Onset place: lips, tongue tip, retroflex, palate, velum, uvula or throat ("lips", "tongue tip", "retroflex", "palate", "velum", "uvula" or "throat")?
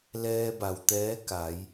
tongue tip